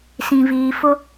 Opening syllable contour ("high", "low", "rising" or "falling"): low